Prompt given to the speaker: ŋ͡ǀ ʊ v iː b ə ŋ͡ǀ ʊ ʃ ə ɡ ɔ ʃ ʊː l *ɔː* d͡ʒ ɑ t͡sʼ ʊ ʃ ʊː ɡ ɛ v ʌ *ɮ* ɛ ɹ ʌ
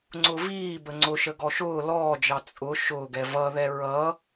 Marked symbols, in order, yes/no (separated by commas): yes, no